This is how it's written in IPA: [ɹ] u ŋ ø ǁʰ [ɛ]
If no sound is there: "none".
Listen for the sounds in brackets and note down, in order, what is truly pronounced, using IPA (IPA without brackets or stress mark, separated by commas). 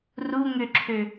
r, ø